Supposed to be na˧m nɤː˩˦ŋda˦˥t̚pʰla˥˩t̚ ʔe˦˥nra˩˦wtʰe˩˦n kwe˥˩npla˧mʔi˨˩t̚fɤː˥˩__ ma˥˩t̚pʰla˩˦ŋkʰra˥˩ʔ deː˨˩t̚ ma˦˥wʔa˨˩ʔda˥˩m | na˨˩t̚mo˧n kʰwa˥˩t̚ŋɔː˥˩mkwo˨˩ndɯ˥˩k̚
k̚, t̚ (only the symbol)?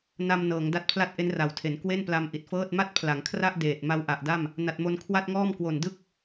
t̚